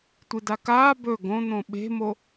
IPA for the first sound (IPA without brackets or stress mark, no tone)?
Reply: tʷ